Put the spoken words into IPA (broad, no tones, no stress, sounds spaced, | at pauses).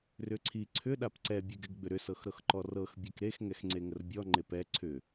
r ʏ ǀʰ i ǀʰ ʏ ɗ a p ǀ ɛ bʲ ɛ ɡ ɛ ɡ ɡ͡b ʏ ɾ ʏ s ɤ x ɾ ɤ x ǃ ɔ r ɤ x bʲ ɛ k ɾ e x ŋ ɛ x ŋ͡ǀ e ŋ ə r bʲ ɔ ŋ͡ǃ e p ɛ ǀʰ ʏ